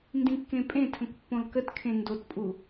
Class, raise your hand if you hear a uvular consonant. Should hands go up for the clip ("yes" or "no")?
no